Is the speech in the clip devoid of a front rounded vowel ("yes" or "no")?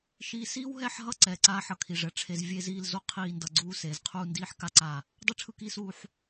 yes